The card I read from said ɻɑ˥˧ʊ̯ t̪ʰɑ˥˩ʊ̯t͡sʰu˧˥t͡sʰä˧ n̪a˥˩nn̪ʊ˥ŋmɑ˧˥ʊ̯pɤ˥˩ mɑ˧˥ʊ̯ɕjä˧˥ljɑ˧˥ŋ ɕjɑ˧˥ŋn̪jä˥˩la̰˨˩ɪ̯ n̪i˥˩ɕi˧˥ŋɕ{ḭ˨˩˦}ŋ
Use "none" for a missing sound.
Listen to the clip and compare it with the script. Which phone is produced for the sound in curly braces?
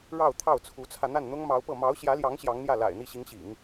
ḭ˨˩˦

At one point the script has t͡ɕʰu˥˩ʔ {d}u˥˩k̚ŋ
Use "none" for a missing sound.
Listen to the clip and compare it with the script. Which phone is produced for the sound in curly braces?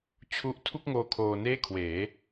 tʰ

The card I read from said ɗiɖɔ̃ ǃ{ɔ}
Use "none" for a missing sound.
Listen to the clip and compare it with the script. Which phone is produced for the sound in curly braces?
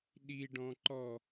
ɔ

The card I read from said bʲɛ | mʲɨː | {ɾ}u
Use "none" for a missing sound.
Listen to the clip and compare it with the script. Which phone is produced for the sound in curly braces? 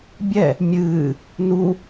n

